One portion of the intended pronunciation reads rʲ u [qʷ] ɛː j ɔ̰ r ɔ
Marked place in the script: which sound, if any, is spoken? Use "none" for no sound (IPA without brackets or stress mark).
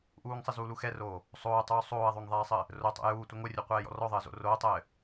qʷ